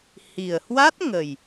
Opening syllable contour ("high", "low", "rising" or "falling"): low